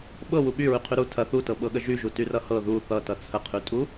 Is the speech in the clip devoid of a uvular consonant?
no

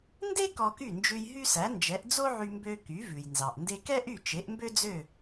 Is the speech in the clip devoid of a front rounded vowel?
no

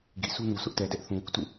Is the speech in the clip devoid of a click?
yes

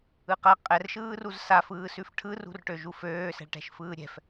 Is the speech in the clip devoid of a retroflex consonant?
no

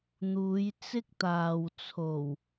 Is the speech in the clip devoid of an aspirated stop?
no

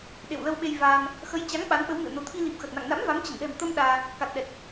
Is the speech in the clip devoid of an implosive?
no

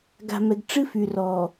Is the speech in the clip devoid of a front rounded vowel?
no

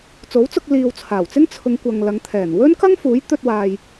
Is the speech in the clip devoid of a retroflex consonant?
yes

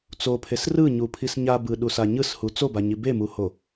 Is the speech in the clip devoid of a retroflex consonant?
yes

